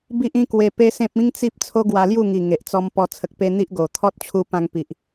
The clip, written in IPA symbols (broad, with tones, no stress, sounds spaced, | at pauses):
b i˦ ʔ ĩ˦ k w e˧ p e˦ s ẽ˦ p̚ ĩ˦ ŋ t͡s i˦ p̚ t͡sʰ o˦ ɡ w a˧ l j u˥˧ ŋ i˨˩ ŋ e˨ ʔ t͡s ɔ˧ m p ɔ˧ t͡sʰ ə˨ k̚ p e˧ n̪ i˦ ʔ ɡ o˨˩ t̪ʰ ɔ˦ t̚ t͡ɕʰ u˧ p ã˧ ŋ p i˨ ʔ